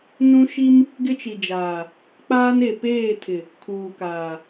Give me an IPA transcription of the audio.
n ũ˦ ʃ i˦ m | ɡ ɪ˦ t͡ʃ i˨ d͡ʒ aː˨ | k͡p aː˦ n e˨ p eː˦˨ tʰ ɪ˨ | kʰ uː˨ k aː˨

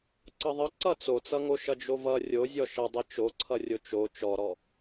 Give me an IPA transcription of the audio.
ǀ ʌ ðˤ ʌ ǀ ʌ t͡s o t͡s ʌ ŋ o ʃ ʌ d͡ʒ o v ʌ rʲ o zʲ ɔ ʃ ʌ dˤ i t͡ʃ o ǀʰ ʌ rʲ o t͡ʃ o t͡ʃ ɔ ɾ ɔ

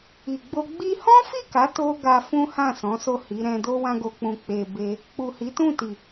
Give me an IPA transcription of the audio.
i˨ ɡ͡b o˧ ɡ͡b i˧ h ɔ̃˦ f i˦˨ k a˨˦ t o˧ ɡ a˧ f ũ˦ h ã˦˨ s ɔ̃˨˦ s o˦˨ h i˨˦ ɾ ɛ̃˧ d o˦ w ã˧ ɡ o˨ k͡p ũ˨ k͡p e˨ b e˧ | k͡p u˨ h i˨˦ t ũ˦˨ t i˨

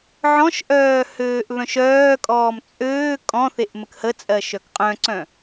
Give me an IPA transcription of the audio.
ʕ ɔ̃ ʃ ʔ œː h øː ʔ β œ̃ ʃ œː kʼ ɔː m t͡sʼ øː kʼ ɔ̃ θ e ʔ m ə k h ə t͡sʼ ɜ ʃ œ k qʼ œ̃ ǀ œ̃

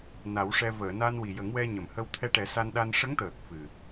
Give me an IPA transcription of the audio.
n a˨˩˦ w ʂ ɛ˧ v əː˨˩˨ n a˧ n w i˨˩ j ə˨˩˦ ŋ w ɛ˧ ɲ ə˨˩˨ m h ə˧ w t̪ʰ ɛ˧ ʈ ɛ˨˩˦ s a˧ n ɗ a˧ n ʂ ə˧˥ ŋ t̪ əː˨˩ k̚ f ɨ˨˩

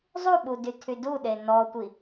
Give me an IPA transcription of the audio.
zˤ u ɓ u d y tʰ y d u ɗ e n ɔ tʷ i

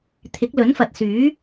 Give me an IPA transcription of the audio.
t̪ʰ ɪ˨˥ k̚ l ɵ˨˥ n f ɐ˨ t̚ s yː˨˥

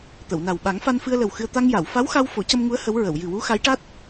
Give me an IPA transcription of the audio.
t̪ ə˨˩˨ w n a˨˩ w ɓ a˨˩˦ ŋ f a˧ n f ɨ˧ ə̯ l ə˨˩ w x ɨ˧ ə̯ t̪ a˧ ŋ j a˨˩˨ w f a˧˥ w x a˧ w f o˨˩˦ c ə˧ m ŋ u˧˥ ə̯ h ə˧˥ w ɹ ə˨˩˨ w j ɨ˨˩ w u˧˥ x a˧˥ j ʈ a˦˥ t̚

